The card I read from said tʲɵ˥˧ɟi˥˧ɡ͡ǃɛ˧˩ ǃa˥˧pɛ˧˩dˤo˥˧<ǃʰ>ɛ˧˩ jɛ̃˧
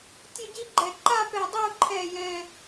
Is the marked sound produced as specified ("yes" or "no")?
yes